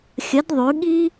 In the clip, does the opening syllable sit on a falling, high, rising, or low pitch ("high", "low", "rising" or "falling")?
rising